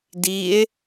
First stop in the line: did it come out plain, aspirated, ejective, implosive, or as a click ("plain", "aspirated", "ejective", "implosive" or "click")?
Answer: plain